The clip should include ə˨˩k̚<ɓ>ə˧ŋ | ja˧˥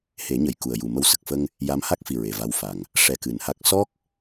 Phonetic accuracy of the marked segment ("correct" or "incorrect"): incorrect